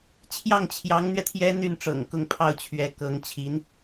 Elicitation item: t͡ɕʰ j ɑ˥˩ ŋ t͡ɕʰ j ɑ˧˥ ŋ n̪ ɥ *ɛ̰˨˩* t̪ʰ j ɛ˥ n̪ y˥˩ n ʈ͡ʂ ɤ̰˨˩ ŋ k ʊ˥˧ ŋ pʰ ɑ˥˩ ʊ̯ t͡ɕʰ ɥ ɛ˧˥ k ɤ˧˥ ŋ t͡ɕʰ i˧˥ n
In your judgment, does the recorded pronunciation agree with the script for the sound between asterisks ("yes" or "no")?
no